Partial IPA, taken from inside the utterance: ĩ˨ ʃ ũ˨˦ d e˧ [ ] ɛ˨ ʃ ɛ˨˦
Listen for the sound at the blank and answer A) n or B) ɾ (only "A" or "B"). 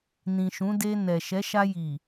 A